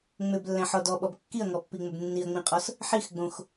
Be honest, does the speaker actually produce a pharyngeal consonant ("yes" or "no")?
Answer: yes